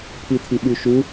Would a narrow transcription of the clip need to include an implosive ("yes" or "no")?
yes